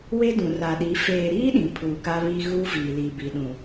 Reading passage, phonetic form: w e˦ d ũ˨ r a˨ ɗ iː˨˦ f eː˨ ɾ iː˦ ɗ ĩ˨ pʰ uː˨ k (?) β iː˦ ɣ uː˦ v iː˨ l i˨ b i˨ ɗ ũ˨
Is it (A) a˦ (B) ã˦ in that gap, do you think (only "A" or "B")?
A